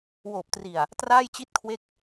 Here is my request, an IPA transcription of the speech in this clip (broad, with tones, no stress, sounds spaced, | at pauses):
w oː˨˩ p̚ t r i˨˩ a̯ | t r aː˥˩ j t͡ɕ i˥˩ t̚ kʰ w e˥˩ k̚